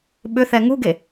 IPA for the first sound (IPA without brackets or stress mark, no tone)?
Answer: ɓ